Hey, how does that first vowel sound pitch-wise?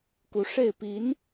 rising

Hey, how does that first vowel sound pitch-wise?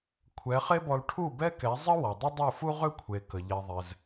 rising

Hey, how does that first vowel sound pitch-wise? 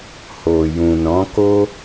low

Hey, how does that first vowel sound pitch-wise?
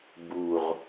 low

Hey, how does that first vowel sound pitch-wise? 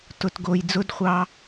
low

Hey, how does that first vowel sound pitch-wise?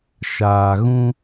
low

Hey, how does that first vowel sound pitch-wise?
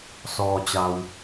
low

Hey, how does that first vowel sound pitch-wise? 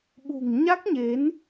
low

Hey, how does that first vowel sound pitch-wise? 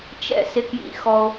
falling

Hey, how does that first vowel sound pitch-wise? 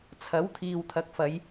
rising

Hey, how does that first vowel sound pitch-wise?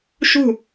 falling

